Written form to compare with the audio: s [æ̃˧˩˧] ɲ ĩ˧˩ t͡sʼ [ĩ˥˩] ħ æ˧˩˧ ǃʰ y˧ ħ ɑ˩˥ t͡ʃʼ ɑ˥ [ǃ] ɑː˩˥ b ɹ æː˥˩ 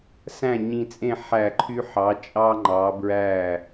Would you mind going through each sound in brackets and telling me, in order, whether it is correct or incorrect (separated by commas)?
incorrect, incorrect, incorrect